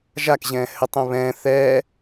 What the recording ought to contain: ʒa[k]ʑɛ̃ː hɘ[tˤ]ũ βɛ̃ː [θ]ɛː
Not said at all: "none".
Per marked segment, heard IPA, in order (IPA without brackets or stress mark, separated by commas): k, tˤ, θ